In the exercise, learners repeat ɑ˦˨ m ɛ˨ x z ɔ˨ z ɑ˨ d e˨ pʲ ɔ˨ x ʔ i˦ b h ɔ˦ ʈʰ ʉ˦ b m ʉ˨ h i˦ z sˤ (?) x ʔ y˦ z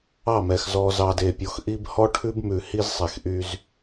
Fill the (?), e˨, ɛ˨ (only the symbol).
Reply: e˨